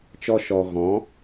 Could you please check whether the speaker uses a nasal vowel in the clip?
yes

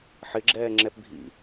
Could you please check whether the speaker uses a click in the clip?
yes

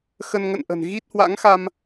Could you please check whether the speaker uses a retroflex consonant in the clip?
no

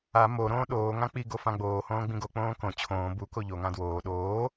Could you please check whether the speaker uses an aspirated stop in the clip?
yes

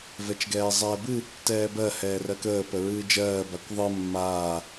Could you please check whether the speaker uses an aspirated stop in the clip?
no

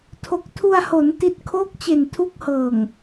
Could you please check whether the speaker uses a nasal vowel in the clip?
no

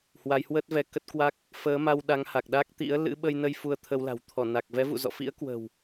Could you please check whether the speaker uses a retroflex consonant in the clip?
no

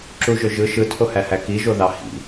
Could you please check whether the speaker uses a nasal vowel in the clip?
no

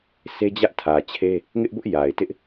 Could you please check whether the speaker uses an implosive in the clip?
no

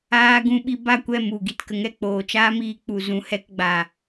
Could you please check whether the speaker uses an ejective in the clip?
no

